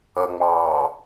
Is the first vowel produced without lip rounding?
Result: yes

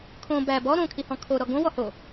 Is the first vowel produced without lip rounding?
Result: no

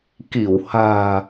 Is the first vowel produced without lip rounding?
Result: yes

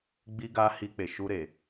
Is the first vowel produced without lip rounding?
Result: yes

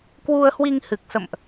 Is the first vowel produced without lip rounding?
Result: no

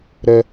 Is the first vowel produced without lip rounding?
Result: yes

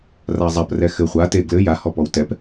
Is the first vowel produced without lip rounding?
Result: yes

